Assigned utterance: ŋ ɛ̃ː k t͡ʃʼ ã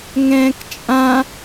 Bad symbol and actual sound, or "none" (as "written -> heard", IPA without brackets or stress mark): none